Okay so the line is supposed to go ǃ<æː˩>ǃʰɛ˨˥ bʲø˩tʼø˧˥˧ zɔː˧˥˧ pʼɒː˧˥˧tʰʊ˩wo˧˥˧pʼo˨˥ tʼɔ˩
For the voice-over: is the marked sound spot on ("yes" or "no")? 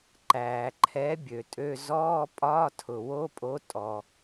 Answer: yes